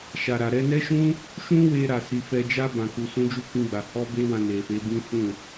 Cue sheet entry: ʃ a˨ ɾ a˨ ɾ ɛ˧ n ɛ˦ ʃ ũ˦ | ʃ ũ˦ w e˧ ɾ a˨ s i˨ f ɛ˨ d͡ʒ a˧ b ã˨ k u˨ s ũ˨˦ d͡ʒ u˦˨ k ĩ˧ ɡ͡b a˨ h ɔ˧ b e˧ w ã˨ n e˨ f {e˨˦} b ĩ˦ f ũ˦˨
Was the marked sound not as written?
no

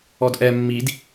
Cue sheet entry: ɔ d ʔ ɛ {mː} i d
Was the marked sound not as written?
no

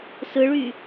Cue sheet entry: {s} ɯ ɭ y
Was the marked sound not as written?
no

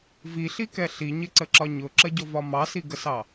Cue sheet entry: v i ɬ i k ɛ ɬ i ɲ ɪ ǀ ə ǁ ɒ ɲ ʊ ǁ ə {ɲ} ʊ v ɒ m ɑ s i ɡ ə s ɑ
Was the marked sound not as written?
yes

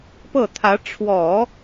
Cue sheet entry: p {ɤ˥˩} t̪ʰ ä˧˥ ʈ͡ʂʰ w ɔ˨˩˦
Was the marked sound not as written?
no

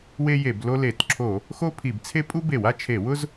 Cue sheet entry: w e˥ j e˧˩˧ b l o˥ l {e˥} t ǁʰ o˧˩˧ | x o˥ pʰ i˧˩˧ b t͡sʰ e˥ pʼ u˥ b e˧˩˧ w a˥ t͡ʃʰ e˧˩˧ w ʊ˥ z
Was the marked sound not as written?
yes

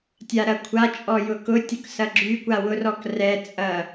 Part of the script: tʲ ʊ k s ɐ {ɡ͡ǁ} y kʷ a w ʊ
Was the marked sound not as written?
no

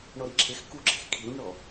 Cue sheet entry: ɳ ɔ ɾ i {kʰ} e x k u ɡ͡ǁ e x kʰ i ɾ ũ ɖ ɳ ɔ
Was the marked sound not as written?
yes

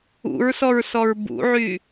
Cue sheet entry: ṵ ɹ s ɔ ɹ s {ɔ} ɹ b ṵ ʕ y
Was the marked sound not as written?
no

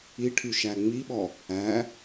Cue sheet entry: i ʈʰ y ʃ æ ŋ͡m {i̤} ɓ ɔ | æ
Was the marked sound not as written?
yes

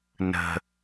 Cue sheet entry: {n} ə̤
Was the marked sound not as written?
no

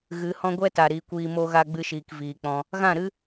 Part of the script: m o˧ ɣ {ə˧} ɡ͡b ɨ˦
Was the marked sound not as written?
yes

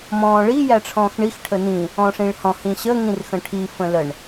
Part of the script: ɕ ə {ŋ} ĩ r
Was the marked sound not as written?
no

